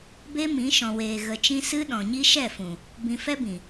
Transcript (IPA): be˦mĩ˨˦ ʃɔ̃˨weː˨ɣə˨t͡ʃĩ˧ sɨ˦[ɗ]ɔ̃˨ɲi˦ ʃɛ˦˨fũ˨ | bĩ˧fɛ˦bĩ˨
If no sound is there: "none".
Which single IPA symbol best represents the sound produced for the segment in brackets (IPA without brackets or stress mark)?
ɗ